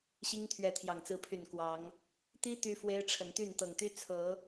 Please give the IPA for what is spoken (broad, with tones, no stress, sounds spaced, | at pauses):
ɕ i˦ ŋ t̪ʰ ɥ ɛ˨˦ t̪ʰ j ɑ˨˩ ŋ t͡s ɹ̩˨˦ pʰ y˨˩ n k w ɑ˨˦ ŋ | t̪ i˦ t̪ y˦ f w e˦ ɪ̯ ʈ͡ʂʰ ə˨˦ n t̪ y˥˨ n t̪ ɤ˨˩ ŋ t̪ y˦ t͡sʰ ɤ˨˦